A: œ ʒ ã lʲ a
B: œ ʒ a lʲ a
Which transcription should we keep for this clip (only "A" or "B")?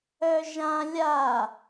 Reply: A